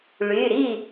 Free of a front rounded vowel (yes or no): no